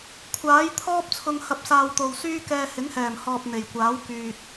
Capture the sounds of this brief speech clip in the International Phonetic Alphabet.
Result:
kʷʰ aː˨˥ j t̪ʰ ɔː˥ p̚ t͡sʰ ʊ˧ ŋ h ɐ˧ p̚ s aː˧ w t̪ o˨ w s yː˥ k ɛː˧ h ɪ˨˥ ŋ h ɛː˨˩ m h ɔː˨ p̚ n̪ e˨˩ j kʷ aː˨˥ w k yː˨ t̚

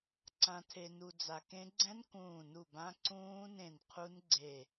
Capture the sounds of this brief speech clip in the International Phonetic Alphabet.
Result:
ǀ ã˨ tʰ e˨ n u˨ d͡z a˨ k ẽ˦˥ ɡ͡ǀ ɛ̃˦˥ n k ũː˦˨ n u˦˨ b ã˦˥ ǀ ũː˦˥ n ẽ˦˨ n qʰ u˦˥ n ɡ͡ǀ e˦˨

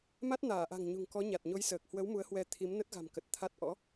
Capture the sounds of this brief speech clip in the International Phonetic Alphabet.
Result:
m a˦˥ t̚ n aː˧˩ ʔ a̤˨˩ ŋ ɲ ṳ˨˩ ŋ k ɔ˨˦ ɲ a˨˩ t̚ ɲ o˨˦ j s əː˨˩ k̚ h w ə˨˦ w m u˨˦ ə̯ h w ɛ˧ t̪ʰ i˨˦ m n ə˦˥ t̚ ɣ a̤˨˩ m k ə˨˩ t̚ t̪ʰ a˦˥ t̚ ʔ ɔ̰˧˥

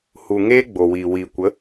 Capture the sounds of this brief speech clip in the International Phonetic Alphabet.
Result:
h u˨ ŋ eː˦ ɡ͡b o˨ w iː˨ w iː˨ kʷ ə˨˦

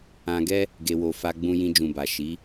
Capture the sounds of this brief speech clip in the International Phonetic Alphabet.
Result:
ã˧ ɡ ɛ˦ | ɡ e˧ w o˧ f a˧ ɡ͡b ũ˧ j ĩ˧ d͡ʒ ũ˨ b a˨ ʃ i˨˦

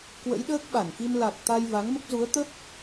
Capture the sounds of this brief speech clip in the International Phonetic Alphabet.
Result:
k w ə̰˧˥ j ɗ əː˦˥ k̚ ɓ a˧˩ n k i˧ m l a˨˩ k̚ t̪ a˧ j v a˨˦ ŋ m ə˦˥ p̚ z u˨˦ ə̯ t̪ ə˦˥ p̚

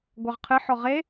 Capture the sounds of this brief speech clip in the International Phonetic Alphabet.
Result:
ɡʷ ɑ ʁ qʰ ɨ ħ ɔ ʁ e

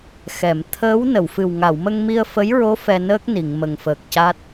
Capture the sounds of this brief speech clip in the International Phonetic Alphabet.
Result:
x ɛ˨˩˨ m t̪ʰ əː˧˥ w n ə˨˩˨ w f ɨ˨˩ w ŋ a˨˩˨ w m ə˧ ŋ m i˧ ə̯ f ə˧˥ j ɹ o˧˥ f ɛ˧ n əː˦˥ k̚ n i˨˩˨ ŋ m ə˨˩ ŋ f əː˨˩ k̚ c aː˦˥ t̚

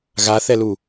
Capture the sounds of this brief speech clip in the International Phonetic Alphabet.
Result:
ɣ a θ ɛ l u

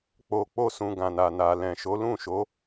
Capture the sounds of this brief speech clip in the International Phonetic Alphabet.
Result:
k͡p o˧ k͡p o˦ s ũ˧ ɡ ã˨ n a˨ n a˨ l ɛ̃˨ ʃ o˨˦ l ũ˦˨ ʃ o˨˦

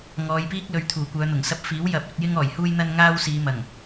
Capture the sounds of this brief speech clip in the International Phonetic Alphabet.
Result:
ŋ ɔː˨˧ j p iː˥ k̚ l ɵ˨˧ ɥ t̪ʰ uː˨˩ kʷ œː˨˧ n̪ ʊ˨˩ ŋ s ɐ˧ p̚ f iː˨˥ w j ɐ˨˥ p̚ ɵ˧ t̚ j ɪ˥ ŋ ɔː˨˩ j h uː˥ j n̪ ɐ˥ n ŋ aː˥ w s iː˨˧ m ɐ˨˩ ŋ

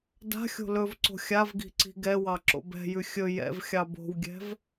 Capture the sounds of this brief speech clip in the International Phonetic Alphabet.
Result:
d a̤ xʲ o̤ l ɵ v ǀ o̤ xʲ a v ɡ i̤ ǀ i̤ ɡ ɛ w ɑ ǁ o̰ b ɛ̤ j ʉ xʲ ɵ j ɛ̰ v xʲ ɑ b o̤ w ɡʲ ɛ̤ v

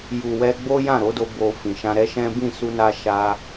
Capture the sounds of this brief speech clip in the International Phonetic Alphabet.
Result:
j u˨ w ɛ˧ ɡ͡b o˦ j ã˦˨ ɾ o˨˦ d o˧ b o˨ f ĩ˨ ʃ ã˧ ɾ ɛ˦ ʃ ɛ̃˦ b ĩ˦˨ s u˧ n a˧ ʃ a˧

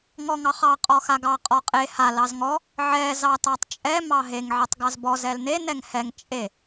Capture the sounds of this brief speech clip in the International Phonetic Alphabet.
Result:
ŋ ɔ ŋ ɑ χ ɑ qʼ ɔ x a ɡ ɑ qʼ ɔ qʼ e h a l ɑ z ŋ ɔ | ʕ ɛ z ɑ t ɑ tˤ t͡ʃʼ ɛ m ɑ ɦ e ŋ ʕ ɛ tˤ ɡ ɑ z b ɔ z ɛ l n e n ɛ ŋ h ɛ ŋ t͡ʃʼ e

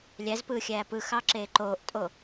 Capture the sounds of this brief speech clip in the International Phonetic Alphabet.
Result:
lʲ æ z p ɯː xʲ æː p ɯ x ɑ ǁ eː ǃ oː ʔ tʼ o

